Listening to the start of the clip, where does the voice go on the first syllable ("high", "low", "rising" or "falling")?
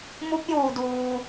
rising